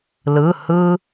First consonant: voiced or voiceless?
voiced